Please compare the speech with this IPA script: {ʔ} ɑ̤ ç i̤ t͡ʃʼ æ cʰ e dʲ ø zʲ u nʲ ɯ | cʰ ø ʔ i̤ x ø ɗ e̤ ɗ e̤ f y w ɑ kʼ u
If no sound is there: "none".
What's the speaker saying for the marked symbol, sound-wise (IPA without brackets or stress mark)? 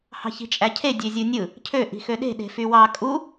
h